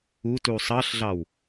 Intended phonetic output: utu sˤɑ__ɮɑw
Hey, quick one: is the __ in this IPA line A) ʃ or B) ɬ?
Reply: B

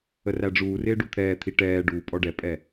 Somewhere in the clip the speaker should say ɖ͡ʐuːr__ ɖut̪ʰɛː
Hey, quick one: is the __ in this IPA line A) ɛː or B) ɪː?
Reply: B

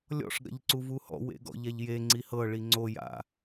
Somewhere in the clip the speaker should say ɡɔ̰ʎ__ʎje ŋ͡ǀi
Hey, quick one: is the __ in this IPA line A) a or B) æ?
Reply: A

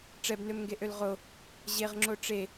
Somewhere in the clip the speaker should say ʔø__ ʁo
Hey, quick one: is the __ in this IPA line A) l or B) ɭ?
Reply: A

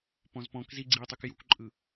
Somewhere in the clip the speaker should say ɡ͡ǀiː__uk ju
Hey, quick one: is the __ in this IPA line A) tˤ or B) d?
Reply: A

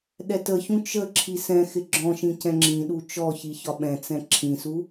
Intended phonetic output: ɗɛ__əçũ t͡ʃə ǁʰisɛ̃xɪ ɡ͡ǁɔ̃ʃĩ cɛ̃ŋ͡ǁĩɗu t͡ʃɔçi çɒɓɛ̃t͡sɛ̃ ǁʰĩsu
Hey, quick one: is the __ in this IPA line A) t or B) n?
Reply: A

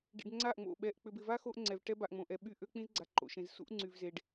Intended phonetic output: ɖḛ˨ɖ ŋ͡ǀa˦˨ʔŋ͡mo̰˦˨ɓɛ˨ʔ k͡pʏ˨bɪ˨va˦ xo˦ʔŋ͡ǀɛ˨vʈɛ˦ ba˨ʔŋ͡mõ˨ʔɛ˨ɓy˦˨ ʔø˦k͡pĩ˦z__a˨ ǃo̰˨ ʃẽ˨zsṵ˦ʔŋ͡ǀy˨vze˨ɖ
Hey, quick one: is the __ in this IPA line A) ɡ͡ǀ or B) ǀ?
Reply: A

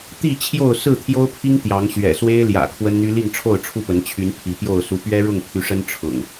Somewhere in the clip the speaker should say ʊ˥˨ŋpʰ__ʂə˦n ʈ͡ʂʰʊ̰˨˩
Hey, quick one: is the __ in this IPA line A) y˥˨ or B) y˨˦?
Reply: B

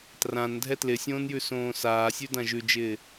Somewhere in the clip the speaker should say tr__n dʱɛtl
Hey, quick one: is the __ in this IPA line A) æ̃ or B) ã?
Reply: B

